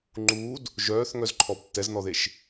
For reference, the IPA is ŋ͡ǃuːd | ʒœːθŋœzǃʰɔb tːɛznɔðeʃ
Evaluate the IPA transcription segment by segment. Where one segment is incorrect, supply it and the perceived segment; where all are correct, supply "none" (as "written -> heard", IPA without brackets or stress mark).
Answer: none